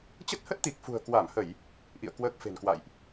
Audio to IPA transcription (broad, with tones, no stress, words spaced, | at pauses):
t͡ɕə˦˥t̚hə˦˥t̚t̪i˨˩k̚ fṳ˨˩ə̯kwa˧˩mhə˧˩˨j | ʔḭ˧˨ə̯ kwəː˦˥k̚fe̤˨˩nkwa̰˧˨jʔ